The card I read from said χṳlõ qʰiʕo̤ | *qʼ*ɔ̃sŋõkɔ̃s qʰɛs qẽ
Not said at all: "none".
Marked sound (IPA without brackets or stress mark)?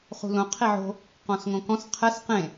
q